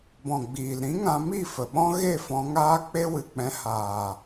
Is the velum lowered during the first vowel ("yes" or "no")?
yes